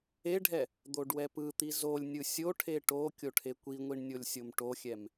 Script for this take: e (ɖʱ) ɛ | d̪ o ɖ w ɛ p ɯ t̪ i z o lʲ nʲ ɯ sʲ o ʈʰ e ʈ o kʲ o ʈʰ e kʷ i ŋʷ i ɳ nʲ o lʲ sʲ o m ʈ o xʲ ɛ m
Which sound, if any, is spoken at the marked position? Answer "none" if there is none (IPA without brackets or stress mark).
ɖʱ